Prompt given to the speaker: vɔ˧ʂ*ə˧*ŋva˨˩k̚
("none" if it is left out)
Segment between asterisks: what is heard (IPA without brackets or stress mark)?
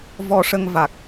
ə˧